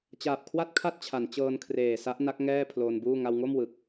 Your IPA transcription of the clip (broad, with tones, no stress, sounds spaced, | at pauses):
t͡ɕ aː˨˩ p̚ kʰ w a˥˩ t̚ kʰ a˥˩ t̚ t͡ɕʰ a˩˦ n t͡ɕ ɤː˧ n kʰ r eː˨˩ s a˦˥ ʔ n a˦˥ k̚ ŋ ɛː˥˩ pʰ l oː˧ n b uː˥˩ ŋ a˧ w ŋ o˥˩ m w ɯ˨˩ k̚